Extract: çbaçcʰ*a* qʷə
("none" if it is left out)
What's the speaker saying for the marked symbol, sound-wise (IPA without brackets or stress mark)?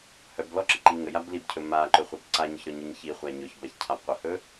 a